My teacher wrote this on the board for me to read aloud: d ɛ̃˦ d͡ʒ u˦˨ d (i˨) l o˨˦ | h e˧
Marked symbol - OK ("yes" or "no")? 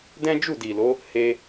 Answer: yes